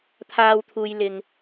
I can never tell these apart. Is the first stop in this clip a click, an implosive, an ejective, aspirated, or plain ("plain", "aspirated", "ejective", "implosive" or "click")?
aspirated